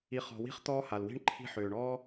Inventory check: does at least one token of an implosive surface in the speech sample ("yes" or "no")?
no